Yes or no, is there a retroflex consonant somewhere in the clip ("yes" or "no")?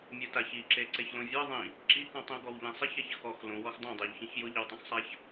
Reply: no